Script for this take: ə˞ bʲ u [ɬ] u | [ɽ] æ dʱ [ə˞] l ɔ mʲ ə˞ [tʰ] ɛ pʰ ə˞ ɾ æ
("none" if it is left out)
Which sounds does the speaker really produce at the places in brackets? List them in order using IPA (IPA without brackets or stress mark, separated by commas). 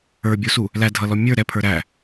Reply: s, l, ʌ, ɾ